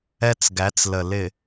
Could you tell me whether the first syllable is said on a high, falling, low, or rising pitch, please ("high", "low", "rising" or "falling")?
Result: high